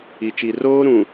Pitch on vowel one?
low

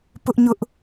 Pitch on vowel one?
high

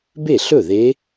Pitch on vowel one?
falling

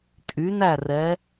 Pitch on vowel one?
rising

